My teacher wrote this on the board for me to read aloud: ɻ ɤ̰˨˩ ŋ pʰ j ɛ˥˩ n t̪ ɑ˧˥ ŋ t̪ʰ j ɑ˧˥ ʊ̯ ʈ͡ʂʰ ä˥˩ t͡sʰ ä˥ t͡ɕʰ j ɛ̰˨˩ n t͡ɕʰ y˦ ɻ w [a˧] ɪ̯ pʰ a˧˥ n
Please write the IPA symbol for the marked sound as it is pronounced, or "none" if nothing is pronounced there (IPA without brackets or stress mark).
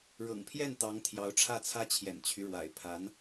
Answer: a̰˨˩